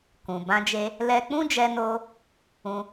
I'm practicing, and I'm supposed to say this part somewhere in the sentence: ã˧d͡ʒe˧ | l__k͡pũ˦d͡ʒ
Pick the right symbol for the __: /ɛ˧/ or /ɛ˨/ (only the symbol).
ɛ˧